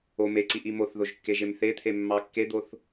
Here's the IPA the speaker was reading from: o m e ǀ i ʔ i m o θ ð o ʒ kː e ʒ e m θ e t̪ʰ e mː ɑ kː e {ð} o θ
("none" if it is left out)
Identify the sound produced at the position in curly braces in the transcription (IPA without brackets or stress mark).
d̪